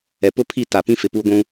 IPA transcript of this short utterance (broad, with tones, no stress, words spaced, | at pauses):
ɛ˨pʊ˦pʰi˦˨ ta˨pĩ˦ fɪ˨puː˦ɡʷũ˦